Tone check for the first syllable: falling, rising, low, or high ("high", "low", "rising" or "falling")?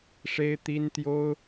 high